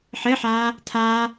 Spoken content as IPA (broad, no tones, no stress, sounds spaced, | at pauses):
ħ ɘ ħ aː | tʰ aː